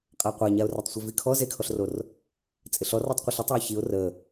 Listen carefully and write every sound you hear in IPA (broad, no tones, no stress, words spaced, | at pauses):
qʼaqʷaɲaʊ̯ ratˤsʷevikʰɔ zekʰɔɬror | t͡sʼɪɬɔ rɔtˤqʷəɬɪtˤoɪ̯ çiʊ̯ rə